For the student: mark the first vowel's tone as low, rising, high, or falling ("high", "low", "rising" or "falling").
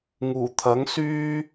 low